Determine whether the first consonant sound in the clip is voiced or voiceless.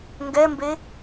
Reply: voiced